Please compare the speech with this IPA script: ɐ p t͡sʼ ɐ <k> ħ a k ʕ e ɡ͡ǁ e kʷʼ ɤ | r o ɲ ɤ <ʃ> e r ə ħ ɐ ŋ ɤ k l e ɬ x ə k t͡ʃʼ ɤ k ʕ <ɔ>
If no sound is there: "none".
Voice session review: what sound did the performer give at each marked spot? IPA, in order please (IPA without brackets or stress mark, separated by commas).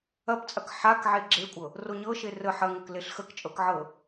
k, ʃ, ɤ